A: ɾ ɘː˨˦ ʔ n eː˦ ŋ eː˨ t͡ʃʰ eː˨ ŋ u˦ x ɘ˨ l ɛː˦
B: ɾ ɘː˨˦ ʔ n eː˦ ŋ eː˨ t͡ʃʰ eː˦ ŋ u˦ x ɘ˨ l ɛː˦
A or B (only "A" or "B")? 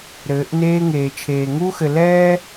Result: A